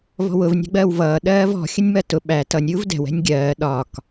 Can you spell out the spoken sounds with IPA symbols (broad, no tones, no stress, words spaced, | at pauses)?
vɔ̤wʊvnʲæ̤ɡ͡bɜːw vʌː ɗɜːvɔ̤ xʲənʲmɜtʊ ɓæ tʌnʲɾʲuːv dɛ̤wɛ̤nʲ ɡʲɜː ɗɒk